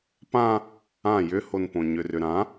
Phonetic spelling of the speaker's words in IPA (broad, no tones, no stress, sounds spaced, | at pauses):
p ã | ã j ʏ h o n p õ ɲ ʏ r ʏ ɾ ã